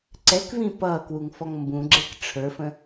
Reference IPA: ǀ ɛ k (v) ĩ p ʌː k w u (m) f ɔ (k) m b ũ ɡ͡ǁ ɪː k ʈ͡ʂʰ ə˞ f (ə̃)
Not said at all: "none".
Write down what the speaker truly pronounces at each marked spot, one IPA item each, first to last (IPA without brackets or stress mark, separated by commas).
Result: v, ŋ, ŋ, ə̃